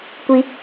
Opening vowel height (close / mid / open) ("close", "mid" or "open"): close